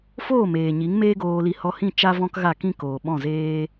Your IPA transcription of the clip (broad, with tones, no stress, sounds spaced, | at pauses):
f oː˦˨ m eː˨ ɲ i˨˦ ŋ m eː˦ ɡ oː˧ l i˧ h ɔ˧ h ĩ˦˨ t͡ʃ a˦ v ɔ̃˦ k ɣ a˦˨ k ĩ˦ k oː˨ ɓ ɔ̃˦˨ z eː˦